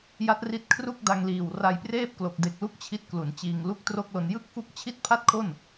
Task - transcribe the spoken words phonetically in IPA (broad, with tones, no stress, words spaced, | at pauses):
ja˦˥t̚ri˦˥t̚kʰru˥˩k̚ da˧ŋliː˨˩w ra˧jpreː˥˩p̚klo˨˩k̚ de˨˩k̚lu˦˥k̚ t͡ɕʰi˥˩t̚klu˩˦nt͡ɕiː˧ŋ lu˥˩k̚tro˥˩k̚lo˧n jɯ˥˩k̚fu˥˩k̚ t͡ɕʰi˥˩t̚pʰa˥˩t̚kʰo˥˩n